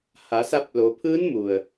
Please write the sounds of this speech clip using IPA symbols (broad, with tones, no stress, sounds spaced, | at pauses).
h a˩˧ s a˧ p̚ l o˩˧ pʰ ɯː˧˥ n m u˩ ə̯